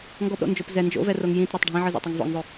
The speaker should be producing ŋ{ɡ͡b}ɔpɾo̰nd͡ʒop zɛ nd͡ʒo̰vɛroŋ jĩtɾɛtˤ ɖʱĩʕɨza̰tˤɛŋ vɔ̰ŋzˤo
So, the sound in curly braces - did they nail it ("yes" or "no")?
no